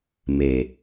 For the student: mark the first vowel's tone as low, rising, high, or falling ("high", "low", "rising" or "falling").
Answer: low